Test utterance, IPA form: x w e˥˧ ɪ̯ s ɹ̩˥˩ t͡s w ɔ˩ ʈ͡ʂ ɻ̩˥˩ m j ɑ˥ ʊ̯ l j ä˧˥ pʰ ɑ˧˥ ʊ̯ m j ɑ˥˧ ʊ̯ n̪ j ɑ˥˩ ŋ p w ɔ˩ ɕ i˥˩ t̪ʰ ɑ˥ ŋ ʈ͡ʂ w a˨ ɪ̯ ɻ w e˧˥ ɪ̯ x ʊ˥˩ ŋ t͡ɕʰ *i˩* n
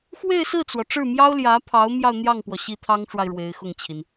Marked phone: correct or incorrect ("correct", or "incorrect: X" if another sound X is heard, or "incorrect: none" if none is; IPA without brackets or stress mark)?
correct